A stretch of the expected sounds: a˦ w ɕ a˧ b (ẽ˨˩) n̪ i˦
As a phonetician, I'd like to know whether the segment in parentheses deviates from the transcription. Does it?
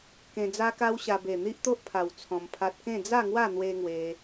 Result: yes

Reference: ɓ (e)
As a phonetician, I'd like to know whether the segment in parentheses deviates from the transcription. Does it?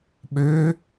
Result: yes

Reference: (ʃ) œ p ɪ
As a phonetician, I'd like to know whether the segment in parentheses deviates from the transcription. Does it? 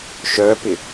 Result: no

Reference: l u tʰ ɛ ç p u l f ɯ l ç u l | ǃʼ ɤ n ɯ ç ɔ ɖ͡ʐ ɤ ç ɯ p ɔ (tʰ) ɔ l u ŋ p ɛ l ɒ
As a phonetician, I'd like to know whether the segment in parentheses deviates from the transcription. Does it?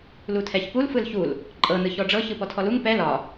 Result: no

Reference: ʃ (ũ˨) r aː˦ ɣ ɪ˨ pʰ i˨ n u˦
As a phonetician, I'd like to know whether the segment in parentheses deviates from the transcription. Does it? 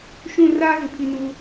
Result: yes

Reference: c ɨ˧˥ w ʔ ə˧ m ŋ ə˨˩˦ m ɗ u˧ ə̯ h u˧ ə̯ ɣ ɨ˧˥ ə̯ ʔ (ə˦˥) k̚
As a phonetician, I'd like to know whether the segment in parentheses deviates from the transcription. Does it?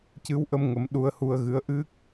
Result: yes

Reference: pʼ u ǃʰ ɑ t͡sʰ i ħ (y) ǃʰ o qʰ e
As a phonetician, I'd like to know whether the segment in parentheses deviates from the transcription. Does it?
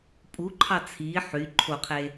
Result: no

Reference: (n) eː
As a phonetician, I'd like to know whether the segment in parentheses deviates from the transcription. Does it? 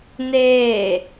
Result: no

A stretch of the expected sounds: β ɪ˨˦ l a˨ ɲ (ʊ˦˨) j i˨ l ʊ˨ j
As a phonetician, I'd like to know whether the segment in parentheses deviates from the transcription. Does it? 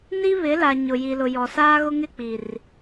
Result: yes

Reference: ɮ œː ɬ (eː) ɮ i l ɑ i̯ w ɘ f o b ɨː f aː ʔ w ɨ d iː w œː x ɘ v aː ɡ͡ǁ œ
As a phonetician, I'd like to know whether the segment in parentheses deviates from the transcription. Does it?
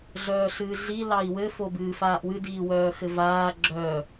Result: yes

